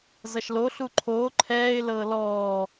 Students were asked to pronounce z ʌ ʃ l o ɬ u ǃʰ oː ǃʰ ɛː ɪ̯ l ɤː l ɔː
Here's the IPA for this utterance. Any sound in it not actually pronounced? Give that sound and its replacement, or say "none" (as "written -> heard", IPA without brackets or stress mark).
none